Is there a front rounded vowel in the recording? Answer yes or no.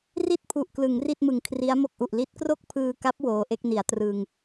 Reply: no